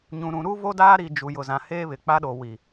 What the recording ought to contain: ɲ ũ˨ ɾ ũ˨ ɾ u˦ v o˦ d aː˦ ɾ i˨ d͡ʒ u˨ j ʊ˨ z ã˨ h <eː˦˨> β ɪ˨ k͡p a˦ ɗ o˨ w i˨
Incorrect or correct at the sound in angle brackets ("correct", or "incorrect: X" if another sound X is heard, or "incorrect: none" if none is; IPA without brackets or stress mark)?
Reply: incorrect: eː˦